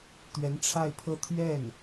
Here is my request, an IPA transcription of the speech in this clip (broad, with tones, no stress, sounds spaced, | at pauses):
t̪ ɥ ɛ˧˥ n ʈ͡ʂʰ a˥˧ ɪ̯ pʰ ɤ˥˧ t̪ʰ ɥ ɛ˥˩ n